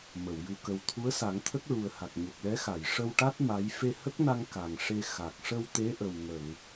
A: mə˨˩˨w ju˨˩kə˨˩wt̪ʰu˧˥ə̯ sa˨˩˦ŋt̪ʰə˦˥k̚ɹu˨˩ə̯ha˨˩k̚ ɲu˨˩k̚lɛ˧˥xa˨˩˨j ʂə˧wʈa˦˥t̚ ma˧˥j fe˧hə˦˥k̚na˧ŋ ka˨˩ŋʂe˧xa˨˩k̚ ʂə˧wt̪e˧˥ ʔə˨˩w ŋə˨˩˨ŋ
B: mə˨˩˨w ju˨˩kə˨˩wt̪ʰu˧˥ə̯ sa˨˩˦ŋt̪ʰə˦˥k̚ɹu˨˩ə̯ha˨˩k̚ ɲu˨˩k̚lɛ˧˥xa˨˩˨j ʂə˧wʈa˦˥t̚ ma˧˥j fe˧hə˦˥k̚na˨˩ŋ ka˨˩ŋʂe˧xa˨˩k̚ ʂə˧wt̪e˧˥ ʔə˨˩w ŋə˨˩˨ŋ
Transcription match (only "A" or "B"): A